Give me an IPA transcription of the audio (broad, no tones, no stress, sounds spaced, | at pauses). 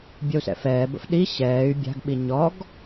bʲ ɐ u̯ s ɛ̰ f ɛː b ə̰ f ɗ i ɕ ɛː y̯ bʲ a̤ ɡ ɓ i ɲ ɔ ɡ